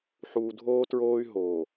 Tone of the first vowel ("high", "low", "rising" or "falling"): low